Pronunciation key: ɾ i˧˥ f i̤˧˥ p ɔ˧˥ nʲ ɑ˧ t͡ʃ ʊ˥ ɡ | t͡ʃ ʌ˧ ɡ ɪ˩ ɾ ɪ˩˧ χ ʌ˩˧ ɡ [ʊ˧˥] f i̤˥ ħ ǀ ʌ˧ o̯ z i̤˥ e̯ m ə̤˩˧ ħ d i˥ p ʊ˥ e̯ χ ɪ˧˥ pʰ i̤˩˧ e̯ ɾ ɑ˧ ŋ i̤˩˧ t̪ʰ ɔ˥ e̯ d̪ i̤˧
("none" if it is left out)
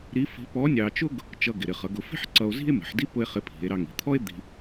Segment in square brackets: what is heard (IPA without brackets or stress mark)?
ʊ˩˧